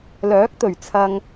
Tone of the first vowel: rising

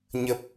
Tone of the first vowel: low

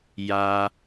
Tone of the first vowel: high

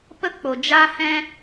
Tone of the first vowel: high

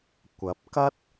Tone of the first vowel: rising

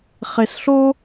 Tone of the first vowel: low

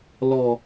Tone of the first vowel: low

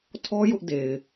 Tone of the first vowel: high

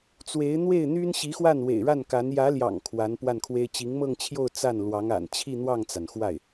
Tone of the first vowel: rising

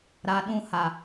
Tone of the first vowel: low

